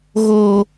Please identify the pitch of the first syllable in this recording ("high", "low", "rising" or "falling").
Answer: high